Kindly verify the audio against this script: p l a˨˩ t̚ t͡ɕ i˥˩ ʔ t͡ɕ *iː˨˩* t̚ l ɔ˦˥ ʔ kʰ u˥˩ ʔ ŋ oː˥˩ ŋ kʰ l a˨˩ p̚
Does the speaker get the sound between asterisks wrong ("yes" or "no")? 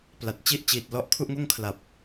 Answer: no